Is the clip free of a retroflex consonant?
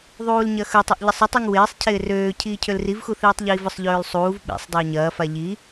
yes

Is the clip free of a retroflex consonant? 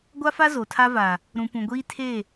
yes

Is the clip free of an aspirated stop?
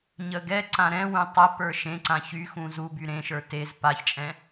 yes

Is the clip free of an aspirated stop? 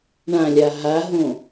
yes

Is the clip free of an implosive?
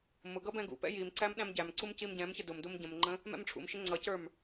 no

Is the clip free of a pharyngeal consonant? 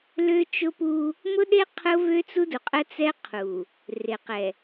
yes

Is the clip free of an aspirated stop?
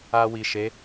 yes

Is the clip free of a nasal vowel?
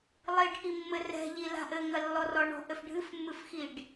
yes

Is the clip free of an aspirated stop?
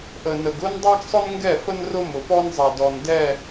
yes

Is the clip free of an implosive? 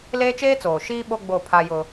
no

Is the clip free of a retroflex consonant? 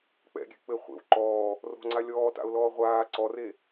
yes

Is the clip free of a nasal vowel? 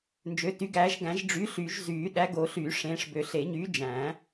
no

